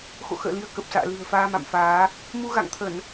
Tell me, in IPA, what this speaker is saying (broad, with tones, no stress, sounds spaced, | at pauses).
x o̰˧˨ x ə̰ː˧˨ l i˧ ə̯ k ə˨˩ p̚ s a̰ː˧˨ l ɨ̤˨˩ ə̯ f aː˧ m a̰˧˨ m f aː˨˦ | m u˧ ɣ a̰˧˨ ŋ t̪ʰ ə˧˩˨ n